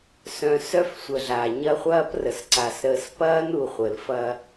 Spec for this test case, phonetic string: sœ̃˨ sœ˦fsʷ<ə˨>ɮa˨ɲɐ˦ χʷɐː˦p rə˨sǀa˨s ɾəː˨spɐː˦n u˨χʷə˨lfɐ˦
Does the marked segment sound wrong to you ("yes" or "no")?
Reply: no